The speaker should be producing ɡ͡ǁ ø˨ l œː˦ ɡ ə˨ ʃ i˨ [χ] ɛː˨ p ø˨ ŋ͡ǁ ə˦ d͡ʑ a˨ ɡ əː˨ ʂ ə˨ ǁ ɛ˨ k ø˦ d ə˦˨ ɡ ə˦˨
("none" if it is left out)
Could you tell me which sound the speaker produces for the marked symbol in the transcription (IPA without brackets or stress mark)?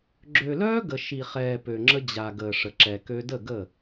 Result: χ